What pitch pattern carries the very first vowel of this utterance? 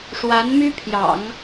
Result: rising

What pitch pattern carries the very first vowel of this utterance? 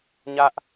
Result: high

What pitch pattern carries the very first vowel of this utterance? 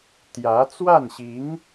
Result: rising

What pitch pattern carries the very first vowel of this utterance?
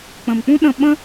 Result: low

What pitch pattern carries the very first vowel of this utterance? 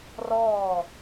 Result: falling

